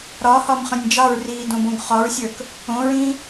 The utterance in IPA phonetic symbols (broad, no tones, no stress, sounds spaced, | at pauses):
ɾ ɒ h ɒ m χ ɐ̃ nʲ d͡ʒ ɑ ɹ r iː d õ b õ ɡ χ ɒ ɹ sʲ ə˞ k | õ ɹ ĩ